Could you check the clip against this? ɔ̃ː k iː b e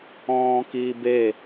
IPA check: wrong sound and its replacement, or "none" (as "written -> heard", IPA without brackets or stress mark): none